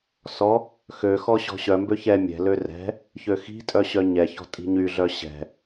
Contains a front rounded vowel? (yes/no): yes